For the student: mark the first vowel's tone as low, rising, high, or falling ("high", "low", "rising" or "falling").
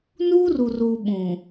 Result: high